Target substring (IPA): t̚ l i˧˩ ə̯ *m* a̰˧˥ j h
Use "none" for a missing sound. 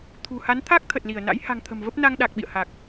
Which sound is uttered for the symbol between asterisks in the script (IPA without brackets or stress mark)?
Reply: n